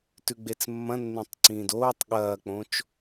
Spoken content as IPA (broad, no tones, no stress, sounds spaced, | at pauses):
t ʉ ɡ͡b e t͡s mː ɐ̃ nː ẽ tˤ ǀ ĩː d oː tˤ ɠ ɐː k͡p õ t͡ʃ